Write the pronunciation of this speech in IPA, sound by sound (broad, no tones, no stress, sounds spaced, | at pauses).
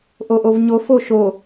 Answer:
ʔ o ʔ o v ɲ o f o ʃ o